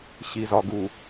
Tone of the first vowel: low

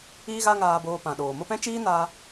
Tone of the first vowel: high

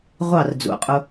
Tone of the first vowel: falling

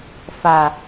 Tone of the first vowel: low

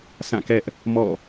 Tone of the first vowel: falling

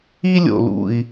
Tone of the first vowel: high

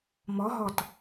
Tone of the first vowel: rising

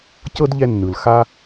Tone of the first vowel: high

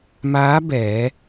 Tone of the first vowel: rising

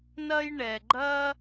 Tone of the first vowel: high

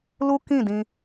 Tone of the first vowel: high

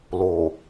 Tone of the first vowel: low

